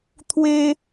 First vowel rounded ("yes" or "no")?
no